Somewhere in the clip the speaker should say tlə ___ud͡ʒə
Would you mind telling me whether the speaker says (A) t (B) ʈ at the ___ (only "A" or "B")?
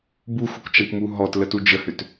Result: A